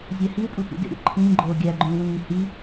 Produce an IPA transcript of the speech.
zʲ æ h i w pʼ u tʷ ḭ d ḛ ɾʲ o̰ ǃʰ ĩː ɡ͡ǃ oː ɡʲ æ ɡ͡ǃ ũː w ĩː h i

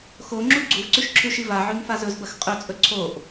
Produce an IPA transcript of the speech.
x o ŋ͡ǁ u ɡ͡ǀ u v ǀ ʉ ʃ ǁʰ ʉ ʃ i v a ʕ ʉ ŋ f a z ɵ z b ɐ x qʼ ɵ t͡sʼ ɵ ǀʰ o ʔ

